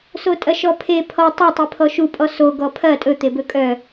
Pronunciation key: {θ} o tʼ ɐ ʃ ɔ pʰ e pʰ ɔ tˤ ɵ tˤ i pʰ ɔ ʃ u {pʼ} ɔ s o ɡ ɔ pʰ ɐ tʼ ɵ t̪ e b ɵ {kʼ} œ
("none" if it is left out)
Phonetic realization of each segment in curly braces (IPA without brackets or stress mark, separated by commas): s, pʼ, kʼ